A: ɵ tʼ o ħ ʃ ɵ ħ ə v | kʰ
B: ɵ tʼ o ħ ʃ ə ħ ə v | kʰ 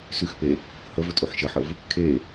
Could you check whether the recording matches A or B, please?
B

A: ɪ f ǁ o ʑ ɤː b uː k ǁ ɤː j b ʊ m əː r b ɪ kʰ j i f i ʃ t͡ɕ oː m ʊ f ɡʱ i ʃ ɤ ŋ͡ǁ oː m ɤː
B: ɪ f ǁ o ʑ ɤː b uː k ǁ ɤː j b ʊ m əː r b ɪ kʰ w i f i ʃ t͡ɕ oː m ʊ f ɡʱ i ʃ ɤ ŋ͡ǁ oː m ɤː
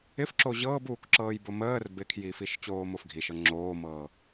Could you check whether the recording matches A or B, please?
A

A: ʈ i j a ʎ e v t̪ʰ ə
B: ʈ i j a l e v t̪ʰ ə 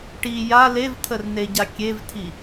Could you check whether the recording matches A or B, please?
B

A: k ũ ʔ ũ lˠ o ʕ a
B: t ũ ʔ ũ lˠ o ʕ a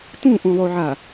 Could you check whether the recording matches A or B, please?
B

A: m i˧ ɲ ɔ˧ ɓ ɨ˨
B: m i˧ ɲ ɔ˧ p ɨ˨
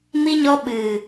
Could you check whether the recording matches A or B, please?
A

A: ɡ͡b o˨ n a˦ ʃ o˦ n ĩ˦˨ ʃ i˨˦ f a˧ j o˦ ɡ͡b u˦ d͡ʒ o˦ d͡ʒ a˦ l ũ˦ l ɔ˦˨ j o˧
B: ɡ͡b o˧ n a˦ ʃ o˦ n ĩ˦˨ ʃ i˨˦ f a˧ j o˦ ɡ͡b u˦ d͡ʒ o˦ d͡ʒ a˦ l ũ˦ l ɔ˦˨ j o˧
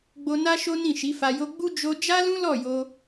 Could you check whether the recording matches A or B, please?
B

